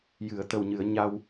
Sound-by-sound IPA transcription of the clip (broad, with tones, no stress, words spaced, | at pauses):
jɨ˨˩˨ə̯t̪ə˨˩wɲɨ˨˩˨ə̯ ɲa˧w